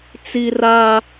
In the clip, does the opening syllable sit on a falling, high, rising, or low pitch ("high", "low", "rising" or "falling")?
high